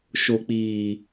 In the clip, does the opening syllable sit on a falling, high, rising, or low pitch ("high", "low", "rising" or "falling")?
low